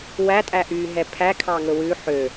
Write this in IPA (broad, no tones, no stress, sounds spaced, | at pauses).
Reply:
w æ tʼ æ ʔ yː ɦ ɛ pʰ æ kʰ ɑ ŋ ɵ w ʉ ħ ø